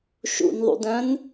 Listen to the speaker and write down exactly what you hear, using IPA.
ʃ ṵ n ðˤ ṵ d œ̃ n

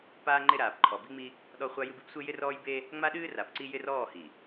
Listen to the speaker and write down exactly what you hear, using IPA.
p aː˦ ŋ͡ǃ ɪ˦ ɾ aː˨ p ǃʰ ɔ˨ b i˦ ŋ͡m i˦ | ɗ ɔ˦ χʷ a˦ j ɨ˦ b i˦ b sʷ e˦ j ɪ˦ r ɔː˦ j b e˦ | ŋ͡m a˦ ɗ ɨː˦ r a˨ p ǀ i˦ j ɪ˦ r ɔː˦˨ h i˨

